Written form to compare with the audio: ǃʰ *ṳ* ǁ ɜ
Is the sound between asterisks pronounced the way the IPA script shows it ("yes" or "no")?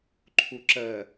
no